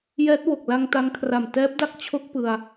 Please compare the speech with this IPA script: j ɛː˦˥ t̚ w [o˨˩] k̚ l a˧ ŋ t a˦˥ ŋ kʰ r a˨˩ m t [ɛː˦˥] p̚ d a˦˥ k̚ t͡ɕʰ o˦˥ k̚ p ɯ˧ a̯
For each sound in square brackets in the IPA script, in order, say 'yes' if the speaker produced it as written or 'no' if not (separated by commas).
yes, yes